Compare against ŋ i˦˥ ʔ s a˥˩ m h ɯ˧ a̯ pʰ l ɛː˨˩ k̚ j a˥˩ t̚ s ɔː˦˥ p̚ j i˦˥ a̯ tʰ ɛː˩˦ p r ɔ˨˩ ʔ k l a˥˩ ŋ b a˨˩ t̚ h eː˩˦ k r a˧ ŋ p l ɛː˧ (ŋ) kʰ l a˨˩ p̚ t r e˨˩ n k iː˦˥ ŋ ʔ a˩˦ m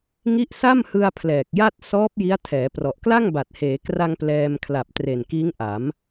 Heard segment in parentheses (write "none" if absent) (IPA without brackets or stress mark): m